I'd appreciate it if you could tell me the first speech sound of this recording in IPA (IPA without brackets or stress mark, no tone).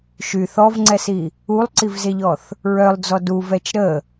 ʃ